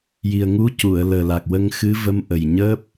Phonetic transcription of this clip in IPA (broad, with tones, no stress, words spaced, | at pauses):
ji˨˩ə̯ŋu˧˥ cu˨˩˨ə̯ləː˨˩la˨˩k̚wə˧ŋ xɨ˧˥və˧˥m ʔə˨˩jɲəː˦˥p̚